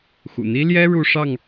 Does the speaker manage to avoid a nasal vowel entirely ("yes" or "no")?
yes